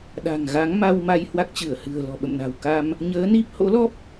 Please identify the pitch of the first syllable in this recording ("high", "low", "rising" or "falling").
low